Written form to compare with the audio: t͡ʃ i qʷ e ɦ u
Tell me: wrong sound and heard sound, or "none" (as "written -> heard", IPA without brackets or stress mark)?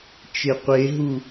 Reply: i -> e